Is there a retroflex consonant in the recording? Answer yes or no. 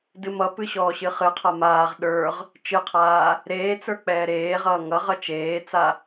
no